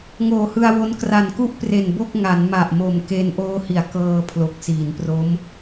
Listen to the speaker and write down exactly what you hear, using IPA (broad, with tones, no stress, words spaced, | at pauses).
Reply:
ŋoː˨˩hɯ˧a̯wo˦˥n kra˨˩nku˥˩ʔ pre˨˩nbo˥˩k̚ ŋa˩˦nma˨˩ʔmo˨˩mke˧n ʔoː˧hi˩˦a̯ kɤː˧ pʰlo˨˩k̚siː˩˦npro˦˥m